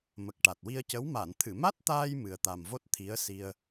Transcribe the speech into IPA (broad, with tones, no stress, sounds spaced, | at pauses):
m ə˨˩ k̚ ʈ a˨˩ t̚ w i˧ ə̯ c ə˧˥ w m a˨˩˨ n t̪ʰ ɨ˨˩˨ m a˦˥ t̚ t̪ aː˧ j m ɨ˨˩ ə̯ t̪ a˨˩ m v o˦˥ t̚ t̪ʰ i˧˥ ə̯ s i˧ ə̯